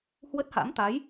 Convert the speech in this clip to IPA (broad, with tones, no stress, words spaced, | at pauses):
hwə˦˥t̚ha̰˧˥m t̪a˨˦j